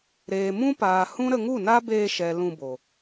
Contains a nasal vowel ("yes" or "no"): yes